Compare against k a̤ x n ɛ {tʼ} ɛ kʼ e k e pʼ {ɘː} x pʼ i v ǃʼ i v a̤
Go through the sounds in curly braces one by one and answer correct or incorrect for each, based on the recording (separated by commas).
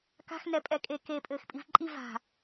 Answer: incorrect, correct